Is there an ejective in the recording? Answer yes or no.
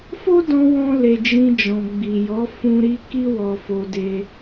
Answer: no